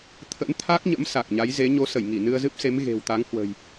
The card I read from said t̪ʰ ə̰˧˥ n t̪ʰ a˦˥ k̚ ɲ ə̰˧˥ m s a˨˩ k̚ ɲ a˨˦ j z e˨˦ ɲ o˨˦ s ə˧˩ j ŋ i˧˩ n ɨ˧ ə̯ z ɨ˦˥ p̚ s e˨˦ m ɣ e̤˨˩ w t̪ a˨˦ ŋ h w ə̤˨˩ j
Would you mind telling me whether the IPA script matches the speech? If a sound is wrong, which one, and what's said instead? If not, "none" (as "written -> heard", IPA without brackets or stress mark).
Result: none